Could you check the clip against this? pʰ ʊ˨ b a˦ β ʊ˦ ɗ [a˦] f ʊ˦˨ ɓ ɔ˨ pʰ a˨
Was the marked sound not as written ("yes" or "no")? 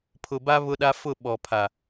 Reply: no